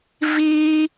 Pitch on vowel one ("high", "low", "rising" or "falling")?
high